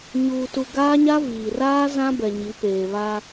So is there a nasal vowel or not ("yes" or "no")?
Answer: yes